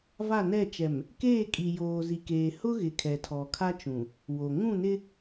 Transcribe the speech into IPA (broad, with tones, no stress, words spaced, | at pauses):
va˦˨nɛ˦˨t͡ʃɛ˨m | keː˦˨kʼi˨ joː˨zi˨keː˨ hʊ˦ɣɪ˨ kʰɛ˨tʰɔ˨kʰa˦t͡ʃũ˨ | wo˨ ŋũ˦˨nɪ˦